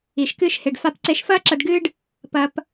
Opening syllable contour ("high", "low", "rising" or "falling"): low